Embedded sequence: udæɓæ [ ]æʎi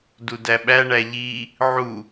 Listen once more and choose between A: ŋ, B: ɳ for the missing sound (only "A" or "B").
B